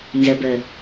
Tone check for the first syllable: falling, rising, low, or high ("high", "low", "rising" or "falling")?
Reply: low